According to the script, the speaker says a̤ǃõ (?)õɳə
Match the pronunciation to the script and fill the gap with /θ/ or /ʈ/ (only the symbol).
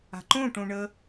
ʈ